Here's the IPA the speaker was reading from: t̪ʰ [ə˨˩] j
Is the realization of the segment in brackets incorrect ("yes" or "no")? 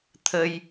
yes